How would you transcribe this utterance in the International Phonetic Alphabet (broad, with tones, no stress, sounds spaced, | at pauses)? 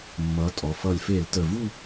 mː ʌ˩˧ tʼ ɔ˩˧ f ʌ˨˩ lʲ f e˧˩˧ l t ə˨˩ v u˥˧